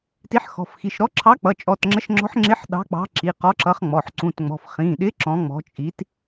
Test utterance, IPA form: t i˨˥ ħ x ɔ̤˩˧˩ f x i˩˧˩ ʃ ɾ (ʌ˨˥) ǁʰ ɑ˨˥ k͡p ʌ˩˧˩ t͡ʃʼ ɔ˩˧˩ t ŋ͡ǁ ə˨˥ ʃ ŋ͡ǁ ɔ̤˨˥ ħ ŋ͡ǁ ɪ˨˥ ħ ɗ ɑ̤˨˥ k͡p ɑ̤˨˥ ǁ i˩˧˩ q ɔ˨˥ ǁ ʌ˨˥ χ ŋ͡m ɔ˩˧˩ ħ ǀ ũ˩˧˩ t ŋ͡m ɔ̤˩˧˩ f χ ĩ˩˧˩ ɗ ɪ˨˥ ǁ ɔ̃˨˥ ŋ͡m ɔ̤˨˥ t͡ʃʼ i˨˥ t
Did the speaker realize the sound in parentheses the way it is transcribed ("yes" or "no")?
no